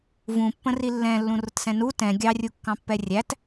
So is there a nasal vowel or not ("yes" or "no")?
yes